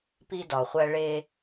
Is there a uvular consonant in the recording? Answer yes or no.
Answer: yes